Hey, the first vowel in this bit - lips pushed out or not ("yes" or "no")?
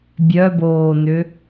yes